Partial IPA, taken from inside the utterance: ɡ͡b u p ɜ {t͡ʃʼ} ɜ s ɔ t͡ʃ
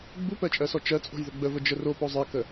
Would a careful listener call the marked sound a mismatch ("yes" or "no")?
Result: no